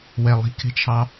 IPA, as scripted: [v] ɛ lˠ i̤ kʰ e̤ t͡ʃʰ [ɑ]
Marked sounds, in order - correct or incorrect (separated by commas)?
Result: incorrect, correct